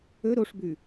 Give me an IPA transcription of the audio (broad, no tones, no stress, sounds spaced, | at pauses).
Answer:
ɵ ɾ o ʂ b ʉ